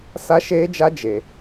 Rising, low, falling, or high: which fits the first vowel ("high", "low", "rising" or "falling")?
high